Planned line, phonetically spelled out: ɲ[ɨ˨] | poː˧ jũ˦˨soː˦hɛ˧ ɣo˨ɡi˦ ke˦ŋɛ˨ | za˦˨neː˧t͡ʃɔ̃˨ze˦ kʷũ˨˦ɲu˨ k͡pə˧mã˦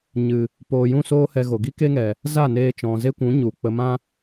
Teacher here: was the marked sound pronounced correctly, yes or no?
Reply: yes